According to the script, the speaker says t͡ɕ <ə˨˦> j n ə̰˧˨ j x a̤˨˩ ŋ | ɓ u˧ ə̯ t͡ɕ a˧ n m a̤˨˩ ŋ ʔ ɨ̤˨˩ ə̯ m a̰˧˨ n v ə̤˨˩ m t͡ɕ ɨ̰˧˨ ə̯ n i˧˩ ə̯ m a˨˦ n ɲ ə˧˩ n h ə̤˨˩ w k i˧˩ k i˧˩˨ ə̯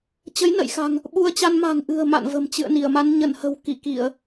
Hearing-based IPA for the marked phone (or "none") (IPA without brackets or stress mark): ə˨˦